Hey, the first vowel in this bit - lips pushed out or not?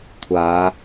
no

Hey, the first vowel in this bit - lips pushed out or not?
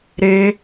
no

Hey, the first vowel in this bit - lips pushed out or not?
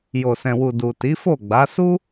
yes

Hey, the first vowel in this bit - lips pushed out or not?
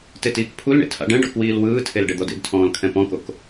no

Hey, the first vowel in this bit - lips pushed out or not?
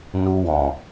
yes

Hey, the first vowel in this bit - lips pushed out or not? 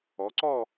yes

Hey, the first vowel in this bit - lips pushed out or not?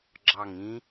no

